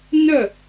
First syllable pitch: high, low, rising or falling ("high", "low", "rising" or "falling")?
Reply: falling